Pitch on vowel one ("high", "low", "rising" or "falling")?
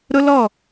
high